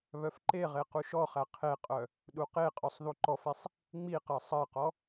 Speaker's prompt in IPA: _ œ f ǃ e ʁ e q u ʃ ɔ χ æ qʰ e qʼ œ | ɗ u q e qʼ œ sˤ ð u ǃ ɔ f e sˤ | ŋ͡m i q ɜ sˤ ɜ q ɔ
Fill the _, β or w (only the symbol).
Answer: β